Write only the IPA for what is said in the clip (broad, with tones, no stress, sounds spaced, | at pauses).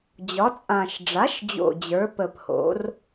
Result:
d͡ʑ ɒ˩˥ t͡sʼ ã˨˩ ʃ ɖ͡ʐ a˩˥ ʃ d͡ʑ o̰˨˩ d͡ʑ ə˞˩˥ p ə˨˩ p h o̰˩˥ r